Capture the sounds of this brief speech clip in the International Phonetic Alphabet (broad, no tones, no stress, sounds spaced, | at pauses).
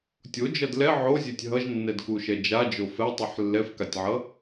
tʲ o d͡ʒ ʌ d l ɛ ʕ o zʲ e tʲ ɦ ʌ ʒ nː ɛ d k u ʃ ɛ d͡ʒ a d͡ʒ o f ɛ tˤ ɯ ħ lː ɛ f k a tʲ ʕ ʌ